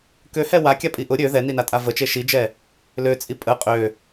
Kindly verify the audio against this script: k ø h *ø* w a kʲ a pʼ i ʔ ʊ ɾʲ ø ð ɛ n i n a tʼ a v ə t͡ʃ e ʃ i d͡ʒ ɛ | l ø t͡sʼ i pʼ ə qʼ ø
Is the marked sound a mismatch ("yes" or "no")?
yes